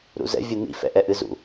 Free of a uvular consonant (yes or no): yes